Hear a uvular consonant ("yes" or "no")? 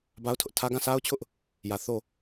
no